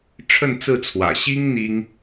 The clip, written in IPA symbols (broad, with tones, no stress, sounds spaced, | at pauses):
ʈ͡ʂʰ ə˥˧ n t͡s ɹ̩˥˩ t͡sʰ w ä̰˨˩ ɕ i˥ ŋ n̪ i˥ ŋ